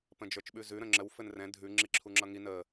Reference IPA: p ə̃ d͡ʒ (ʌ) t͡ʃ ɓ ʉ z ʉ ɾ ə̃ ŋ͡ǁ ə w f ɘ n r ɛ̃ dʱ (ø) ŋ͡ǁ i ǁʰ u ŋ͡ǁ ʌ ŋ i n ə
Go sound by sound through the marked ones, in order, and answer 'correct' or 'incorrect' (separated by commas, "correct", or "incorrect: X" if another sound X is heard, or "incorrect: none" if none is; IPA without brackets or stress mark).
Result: incorrect: ə˞, incorrect: ʉ